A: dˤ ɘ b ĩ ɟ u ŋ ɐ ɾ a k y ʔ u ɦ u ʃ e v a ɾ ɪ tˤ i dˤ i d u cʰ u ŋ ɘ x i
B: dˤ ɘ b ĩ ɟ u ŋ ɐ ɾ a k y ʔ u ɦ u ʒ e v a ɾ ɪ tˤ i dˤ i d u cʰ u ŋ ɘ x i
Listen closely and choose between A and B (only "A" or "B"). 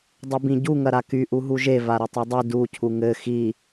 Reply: B